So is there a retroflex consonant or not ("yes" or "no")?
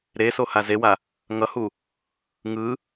no